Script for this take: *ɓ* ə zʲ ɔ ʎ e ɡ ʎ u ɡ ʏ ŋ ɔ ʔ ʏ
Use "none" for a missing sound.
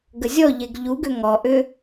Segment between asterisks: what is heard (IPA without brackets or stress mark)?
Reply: ɡ